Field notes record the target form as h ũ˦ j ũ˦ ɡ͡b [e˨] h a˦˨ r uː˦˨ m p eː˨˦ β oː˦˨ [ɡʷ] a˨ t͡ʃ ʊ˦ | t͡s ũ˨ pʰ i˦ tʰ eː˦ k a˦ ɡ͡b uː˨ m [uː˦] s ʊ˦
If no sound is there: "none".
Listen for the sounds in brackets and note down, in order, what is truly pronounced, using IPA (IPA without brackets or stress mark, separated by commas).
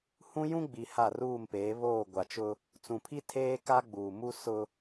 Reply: i˨, ɡʷ, u˦